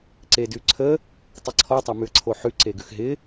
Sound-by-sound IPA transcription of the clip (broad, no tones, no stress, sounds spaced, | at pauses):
ǀ e d ʉ ǀʰ ə | tˤ i ǀʰ ɔ tˤ a m ʉ ə̯ ǀʰ o ħ ʉ ǀ e ɡ ʉ x ɦ ɪ